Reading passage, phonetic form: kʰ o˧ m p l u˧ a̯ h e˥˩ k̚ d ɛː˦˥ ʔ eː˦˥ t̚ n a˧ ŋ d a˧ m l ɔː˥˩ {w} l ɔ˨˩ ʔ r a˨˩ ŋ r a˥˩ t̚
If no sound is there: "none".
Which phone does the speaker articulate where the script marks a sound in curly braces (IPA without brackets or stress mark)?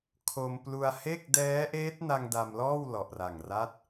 w